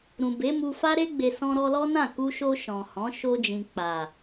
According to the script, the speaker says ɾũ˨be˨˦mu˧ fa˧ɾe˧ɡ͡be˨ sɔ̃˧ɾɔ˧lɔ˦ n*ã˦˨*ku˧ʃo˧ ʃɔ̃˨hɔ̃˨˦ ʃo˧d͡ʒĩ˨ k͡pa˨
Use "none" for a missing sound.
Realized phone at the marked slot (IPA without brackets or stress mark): ã˦˨